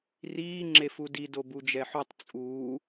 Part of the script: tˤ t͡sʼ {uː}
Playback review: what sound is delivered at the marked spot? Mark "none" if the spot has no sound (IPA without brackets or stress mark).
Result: uː